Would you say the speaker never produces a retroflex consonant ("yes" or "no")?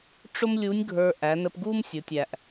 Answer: no